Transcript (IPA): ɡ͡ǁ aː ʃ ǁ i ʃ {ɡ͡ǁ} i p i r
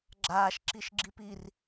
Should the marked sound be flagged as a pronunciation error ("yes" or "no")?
no